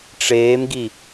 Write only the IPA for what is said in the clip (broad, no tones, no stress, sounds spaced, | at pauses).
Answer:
ʈ͡ʂ eː m ɡ i